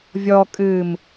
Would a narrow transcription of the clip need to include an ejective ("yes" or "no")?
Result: yes